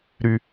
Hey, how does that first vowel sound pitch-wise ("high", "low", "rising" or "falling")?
low